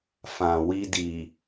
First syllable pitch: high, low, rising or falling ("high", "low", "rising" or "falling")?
low